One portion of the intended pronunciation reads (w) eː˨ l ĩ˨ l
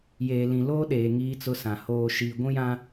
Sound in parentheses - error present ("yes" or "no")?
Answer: yes